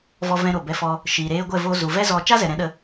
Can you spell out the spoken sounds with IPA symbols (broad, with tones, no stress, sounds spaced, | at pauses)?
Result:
v ɔ˧ v ɛ̃˧ ɾ o˨ b ɛ˧ f ɔ˦ | ʃ iː˨ ɾ eː˧ ɡʷ ɛ˦˨ v o˧ z u˨ v ɛ˦ z ɔ˧ t͡ʃ a˦ z ɛ˨ ɾ ɛ̃˨˦ ɗ ə˧